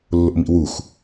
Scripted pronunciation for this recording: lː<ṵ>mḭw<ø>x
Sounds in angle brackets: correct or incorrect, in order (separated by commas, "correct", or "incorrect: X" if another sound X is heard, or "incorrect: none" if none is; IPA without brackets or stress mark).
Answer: incorrect: o̰, incorrect: u